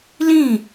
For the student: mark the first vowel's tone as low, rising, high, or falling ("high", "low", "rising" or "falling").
falling